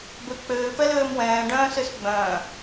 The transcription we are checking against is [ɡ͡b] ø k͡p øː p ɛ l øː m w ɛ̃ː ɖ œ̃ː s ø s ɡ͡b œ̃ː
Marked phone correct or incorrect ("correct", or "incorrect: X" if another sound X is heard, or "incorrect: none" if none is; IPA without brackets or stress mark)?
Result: incorrect: b